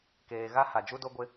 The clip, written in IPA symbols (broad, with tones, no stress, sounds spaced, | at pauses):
k eː˨ ɣ a˦ h a˨ d͡ʒ u˦ d o˦ ɡʷ ɪ˦